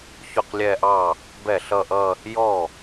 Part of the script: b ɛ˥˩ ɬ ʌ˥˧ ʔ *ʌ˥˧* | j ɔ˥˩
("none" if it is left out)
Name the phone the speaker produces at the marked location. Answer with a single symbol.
ʌ˥˧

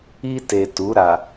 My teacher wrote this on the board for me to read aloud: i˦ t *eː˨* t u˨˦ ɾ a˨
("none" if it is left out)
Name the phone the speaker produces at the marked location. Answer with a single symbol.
e˨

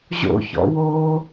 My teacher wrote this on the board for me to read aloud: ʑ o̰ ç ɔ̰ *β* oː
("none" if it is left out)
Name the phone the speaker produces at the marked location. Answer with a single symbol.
w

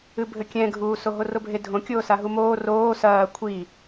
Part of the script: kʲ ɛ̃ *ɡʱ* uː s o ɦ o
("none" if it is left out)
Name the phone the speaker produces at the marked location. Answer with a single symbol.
ɡʱ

